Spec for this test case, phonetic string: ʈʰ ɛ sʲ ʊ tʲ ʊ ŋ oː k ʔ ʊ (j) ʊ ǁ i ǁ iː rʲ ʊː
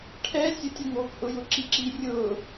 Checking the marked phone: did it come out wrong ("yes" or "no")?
no